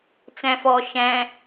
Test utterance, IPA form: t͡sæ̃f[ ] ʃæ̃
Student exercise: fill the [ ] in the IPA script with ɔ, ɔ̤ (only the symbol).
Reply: ɔ